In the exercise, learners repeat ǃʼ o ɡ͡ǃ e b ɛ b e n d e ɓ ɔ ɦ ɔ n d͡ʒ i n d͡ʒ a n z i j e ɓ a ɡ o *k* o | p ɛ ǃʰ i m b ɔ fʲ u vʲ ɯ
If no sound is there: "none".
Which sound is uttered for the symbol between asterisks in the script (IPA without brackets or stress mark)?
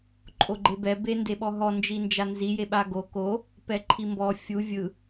k